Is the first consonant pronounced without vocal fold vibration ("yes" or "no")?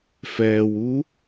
yes